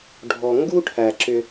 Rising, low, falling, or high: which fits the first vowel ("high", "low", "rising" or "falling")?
low